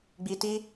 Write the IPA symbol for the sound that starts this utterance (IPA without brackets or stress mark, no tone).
ɡ͡b